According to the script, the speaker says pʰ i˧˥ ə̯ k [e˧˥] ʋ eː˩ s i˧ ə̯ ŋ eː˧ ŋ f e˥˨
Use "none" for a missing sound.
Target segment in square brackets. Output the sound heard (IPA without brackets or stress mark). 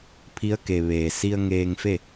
e˩